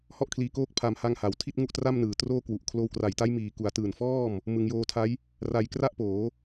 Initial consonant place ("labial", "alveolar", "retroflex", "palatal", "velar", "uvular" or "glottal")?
glottal